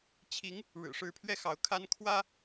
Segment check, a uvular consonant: absent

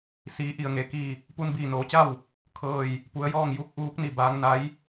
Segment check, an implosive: absent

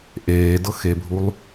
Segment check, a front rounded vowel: absent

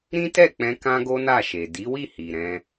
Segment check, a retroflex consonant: absent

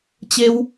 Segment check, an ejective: absent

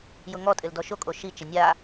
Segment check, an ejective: present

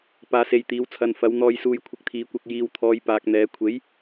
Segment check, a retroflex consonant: absent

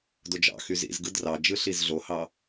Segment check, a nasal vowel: absent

